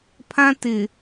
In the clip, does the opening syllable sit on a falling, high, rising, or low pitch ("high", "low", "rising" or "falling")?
high